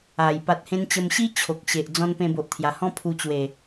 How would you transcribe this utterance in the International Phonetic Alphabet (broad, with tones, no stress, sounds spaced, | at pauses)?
a˨˩ j p a˨ t̚ h ẽ˧ n t͡ɕ ə˧ m ɕ i˦ t͡ɕʰ o˨ k̚ ɕ e˨ ʔ d͡z ɔ̃˧ n p ẽ˧ b o˨ ʔ t̪ʰ j a˨˩ h ɔ̃˦ pʰ u˧ t͡ɕ w e˨˩